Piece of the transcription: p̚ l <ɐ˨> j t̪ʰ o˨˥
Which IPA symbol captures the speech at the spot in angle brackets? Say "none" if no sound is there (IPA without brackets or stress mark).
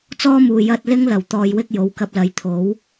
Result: ɐ˨˧